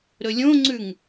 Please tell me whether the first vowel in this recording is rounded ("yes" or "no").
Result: yes